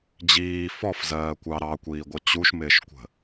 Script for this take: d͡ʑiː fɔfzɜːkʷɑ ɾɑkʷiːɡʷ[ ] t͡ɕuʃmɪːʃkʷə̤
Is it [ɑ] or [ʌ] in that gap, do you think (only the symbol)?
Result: ʌ